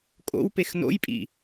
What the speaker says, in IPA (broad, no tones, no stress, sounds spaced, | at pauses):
kʼ o̰ w p e x n o̰ j pʼ ḭ